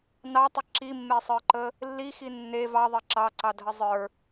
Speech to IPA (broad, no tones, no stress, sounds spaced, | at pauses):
n ɑ tˤ ə ǁ i mː e sˤ ə˞ ǃ ə | lː i x i nː e v ɑ ðˤ e ǁ ɑ ǀ ɑ dʱ ə zˤ ə˞